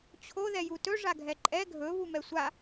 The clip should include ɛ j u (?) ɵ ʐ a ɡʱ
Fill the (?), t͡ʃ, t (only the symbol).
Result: t